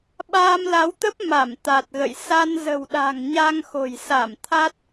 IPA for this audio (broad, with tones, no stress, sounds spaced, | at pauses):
ɓ aː˧ m l a˨˦ w t̪ ə˦˥ p̚ m a˧˩ m t̪ a˨˩ t̚ ɣ ə̰˧˨ j s a˧ n z ə̤˨˩ w ɗ a̤˨˩ ŋ ɲ a˧ ŋ x o̤˨˩ j s a˧˩ m t̪ʰ a˦˥ t̚